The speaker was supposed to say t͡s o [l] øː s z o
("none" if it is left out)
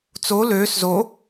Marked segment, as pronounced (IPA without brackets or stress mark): l